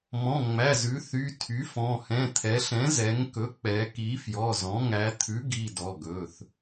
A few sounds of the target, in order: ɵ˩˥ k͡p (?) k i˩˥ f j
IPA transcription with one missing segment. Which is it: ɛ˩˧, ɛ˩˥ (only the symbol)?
ɛ˩˧